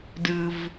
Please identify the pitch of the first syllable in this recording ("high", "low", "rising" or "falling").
low